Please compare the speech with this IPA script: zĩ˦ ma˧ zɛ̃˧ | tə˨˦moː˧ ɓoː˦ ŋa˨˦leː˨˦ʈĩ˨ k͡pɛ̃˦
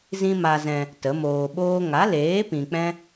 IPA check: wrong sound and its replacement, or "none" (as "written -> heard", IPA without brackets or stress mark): ʈ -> p